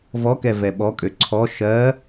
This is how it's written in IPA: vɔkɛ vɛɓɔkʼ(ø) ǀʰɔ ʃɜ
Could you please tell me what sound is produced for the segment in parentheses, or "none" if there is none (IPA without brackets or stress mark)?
ø